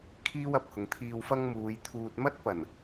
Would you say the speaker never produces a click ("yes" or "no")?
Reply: yes